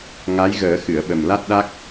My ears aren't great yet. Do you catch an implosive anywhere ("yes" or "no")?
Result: yes